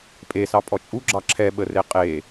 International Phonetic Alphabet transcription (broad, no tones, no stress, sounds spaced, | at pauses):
pʼ e s ɑ pʼ ɔ t͡ʃʼ u ɡ͡ǁ ɑ ǁʰ ɛ ɓ ə r e qʼ e